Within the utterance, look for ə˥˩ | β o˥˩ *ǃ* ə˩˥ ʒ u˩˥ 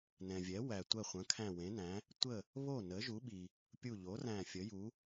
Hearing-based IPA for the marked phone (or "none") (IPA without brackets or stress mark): n